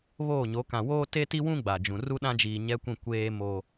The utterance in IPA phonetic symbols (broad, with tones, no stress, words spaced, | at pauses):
βoː˦˨ɲo˨˦ kã˨woː˦ te˦ti˦wũ˦ ɡ͡ba˨d͡ʒũ˨ ru˦ɗã˦d͡ʒiː˨ ɲɛ˦kʷĩ˦˨ kʷeː˦ moː˦